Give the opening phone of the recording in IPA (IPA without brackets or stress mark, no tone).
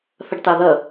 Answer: θ